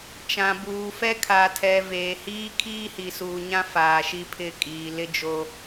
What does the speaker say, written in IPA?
t͡ʃã˨buː˨fɛ˦ kʰa˨tʰɛ˨ veː˨hiː˦kʰiː˦ hi˨suː˨ɲã˦ faː˨ʃi˦pʰɪ˦˨ kʼiː˨ lɪ˦d͡ʒo˦

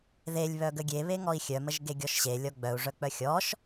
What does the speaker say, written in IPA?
ðelʲβœɡə ɡʲeβeŋɔi̯ xʲœməʒ ɡeɡʲɔʃɕe lʲɔɡ͡bœu̯ʐœk͡pœ xʲɔʃ

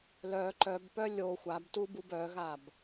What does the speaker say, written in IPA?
lœ ǃœbpœ lʲo xʷabtubub œɣab

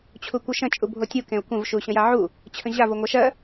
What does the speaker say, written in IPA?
t͡ɕʰukʷəʃə̃ t͡ʃʼubʱotʲu kẽʊ̯kʷə̃v ʃuɕə̃jaʕu | t͡ɕʰə̃ʑa voŋʷaʃɜ

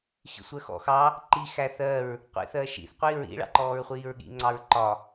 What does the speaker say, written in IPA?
xḭsʷɜxɔ̰xɑ | ǃi xæθɜɹ | qʷḭθɜʃḭθ qʷiɹḭ ɭɑ̰ǃɔːɹχʷiːɹɠḭ ŋ͡ǀɑɹǃɒ

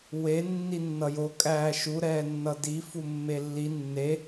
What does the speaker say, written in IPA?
we nːinːʌjo kʼæːʃu ɾɛːnːʌdi fumːelːi nːe

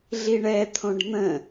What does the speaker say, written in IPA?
ɮiɳɛt̪ʰõɖ n̪ə̃

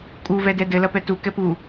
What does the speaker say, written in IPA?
kʼuvɛ dɛdɘlɐpɛ tu kɛpu

